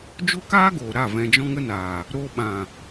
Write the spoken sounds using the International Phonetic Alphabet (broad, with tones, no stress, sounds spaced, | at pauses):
d͡ʒ o˦ k aː˦ ɡ oː˨ ɾ a˦˨ v ɛ̃˧ d͡ʒ ɔ̃˦ ŋ ə˦ n aː˨ | ɾ o˧ ɓ ã˨